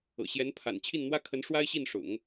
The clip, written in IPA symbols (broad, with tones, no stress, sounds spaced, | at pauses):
ɤ̰˨˩ ɕ j ɛ˧˥ n pʰ a̰˨˩ n t͡ɕʰ i˥˩ n n̪ w ä˥ kʰ ə˧˥ n ʂ w a˥ ɪ̯ ɕ i˥˩ n ʂ ʊ̰˨˩˦ ŋ